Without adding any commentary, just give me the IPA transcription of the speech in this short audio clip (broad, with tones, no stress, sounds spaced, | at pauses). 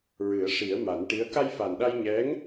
ɹ ɨ˨˩˦ ə̯ ʂ i˨˩˦ ə̯ m a˨˩˦ n ʈ i˧˥ ə̯ k a˧ j f a˨˩ n ɗ a˧ j ɲ ɛ˧˥ ŋ